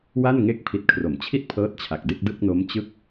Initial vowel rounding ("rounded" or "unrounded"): unrounded